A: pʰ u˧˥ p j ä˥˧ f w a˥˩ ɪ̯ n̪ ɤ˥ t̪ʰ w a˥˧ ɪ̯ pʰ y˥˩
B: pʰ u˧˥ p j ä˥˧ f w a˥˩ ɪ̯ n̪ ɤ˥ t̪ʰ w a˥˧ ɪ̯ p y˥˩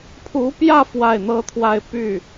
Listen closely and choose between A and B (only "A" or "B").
B